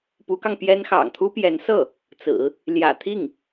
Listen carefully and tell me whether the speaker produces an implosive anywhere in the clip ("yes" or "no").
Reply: no